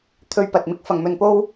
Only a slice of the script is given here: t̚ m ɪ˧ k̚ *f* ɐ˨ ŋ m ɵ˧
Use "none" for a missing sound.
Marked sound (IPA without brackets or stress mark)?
f